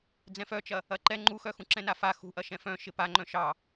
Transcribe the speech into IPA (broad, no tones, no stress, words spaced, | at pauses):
d͡zɛ̃fœt͡ʃɐ | ɐǃɛ ŋ͡ǃuxœxũ ǁɛ̃nafa xṳʔɐ ʃɛ̃fœ̃ ʃɪpaŋ͡ǃœ̃ ʃɑ